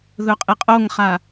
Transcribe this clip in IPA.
ðɵqʼɪqʼoŋχa

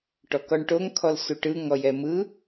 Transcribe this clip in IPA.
ʈɔkɔɳʈoŋ kʰɔlsuʈɯ ŋɔjɛmɯ

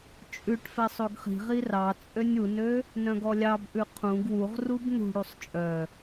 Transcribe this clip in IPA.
t͡ʃʼʉʈfɛ sˤoɡχi̤ʁi rɑ t͡sʼønʲunø | nœ̃ɡɔlʲɑbʔʉ qʰũɡ wuʁrub nṳɽusˤ t͡ʃʼœ

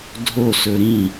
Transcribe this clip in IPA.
dʱo sɵɾĩ

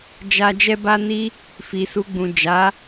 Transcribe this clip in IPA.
d͡ʒa˧ d͡ʒɛ˦ba˦ni˦ | fi˨su˧ɡ͡bũ˨ d͡ʒa˨˦

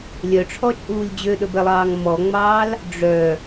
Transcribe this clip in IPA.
lʲœʈ͡ʂʰɔt͡ʃʼuːlʲ d͡ʑøɗɵbɛlˠɑːŋ mɔŋ͡mɑːl | ɖ͡ʐœ

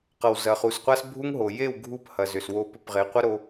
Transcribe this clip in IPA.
qʌ˨wzɐ˨χu˨sqʷa˧s bʱu˦ŋɦo˨ je˦˨w ɡʱu˦phɐ˨zʏ˨swo˧ pʏ˧pʁe˨˦qʷɐ˦ɾo˧

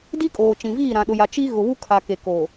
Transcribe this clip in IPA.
di˦kʼoː˨ t͡ʃĩ˨viː˦˨ ɾã˨ɗʊ˨ja˨ t͡ʃi˦ ɣʊ˨βu˦ kʰa˨ke˨ koː˨

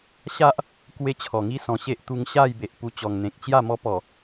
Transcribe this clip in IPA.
ɕa˦ʔ | kwe˦t͡ɕʰɔ˨˩ ŋi˦sɔ̃˨˩ɕe˦ʔt̪u˧ŋ ɕa˥˧jbe˨ʔ pu˧t͡ɕɔ˨˩ŋn̪ẽ˨k̚ t͡ɕja˥˧ mɔ˦pɔ˨˩

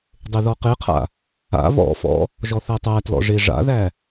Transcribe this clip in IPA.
dˤeðɔqeqʰa̰ | a̰ βɔ̰fɔ̰ | ʒɔθætˤætlɔ̰ ʐeʐa̰ðæ

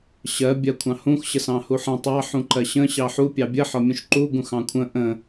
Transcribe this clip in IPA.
ɕɜ bʲɜkʷʰɑ̃hũx ɕəsɑ̃huħə̃ tˤɑ ħũǃɜɕə̃ ɕɑħu pʲɑbʲə ħɒmʲũʃǃu ɡũxɑ̃kʷʰə̃ ʔə̃

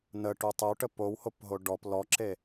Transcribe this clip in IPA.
nəʈu tˤəwʈə powhopɦo ɖɔp lɔǁe

